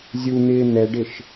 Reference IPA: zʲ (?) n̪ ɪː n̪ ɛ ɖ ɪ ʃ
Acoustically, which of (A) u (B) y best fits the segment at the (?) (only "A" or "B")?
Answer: A